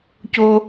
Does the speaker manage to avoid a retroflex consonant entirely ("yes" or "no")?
yes